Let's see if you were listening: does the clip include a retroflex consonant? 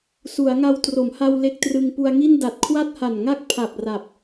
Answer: no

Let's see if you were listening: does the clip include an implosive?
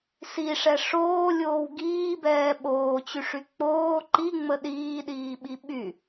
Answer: yes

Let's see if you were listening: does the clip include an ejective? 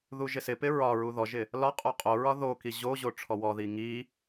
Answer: yes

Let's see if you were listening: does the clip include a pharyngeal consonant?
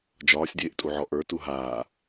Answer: yes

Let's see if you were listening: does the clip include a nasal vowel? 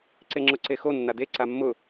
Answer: no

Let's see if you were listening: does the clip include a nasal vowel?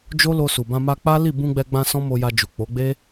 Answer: yes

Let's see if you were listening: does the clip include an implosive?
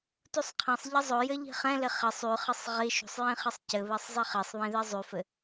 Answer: no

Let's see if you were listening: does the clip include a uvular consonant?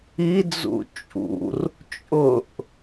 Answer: no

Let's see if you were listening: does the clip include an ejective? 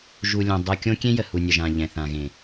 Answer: no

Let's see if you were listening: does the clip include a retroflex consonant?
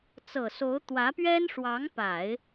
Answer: yes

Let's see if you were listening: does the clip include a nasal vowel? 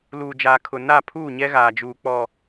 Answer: no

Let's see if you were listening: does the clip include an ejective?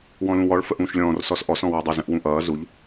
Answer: no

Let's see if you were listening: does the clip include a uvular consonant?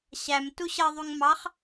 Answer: yes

